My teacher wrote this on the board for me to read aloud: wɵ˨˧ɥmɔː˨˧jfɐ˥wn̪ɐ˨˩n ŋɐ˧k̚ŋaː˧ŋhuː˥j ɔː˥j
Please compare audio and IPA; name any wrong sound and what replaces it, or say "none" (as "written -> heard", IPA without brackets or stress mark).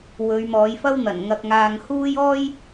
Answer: none